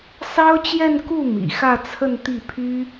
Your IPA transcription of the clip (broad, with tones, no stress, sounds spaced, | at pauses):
s ɑ˥ ʊ̯ t͡ɕ j ɛ˥˧ n k u˥˩ m ḭ˨˩ x ä˥˧ t͡sʰ ə˥˧ n t̪ i˥˩ pʰ y˥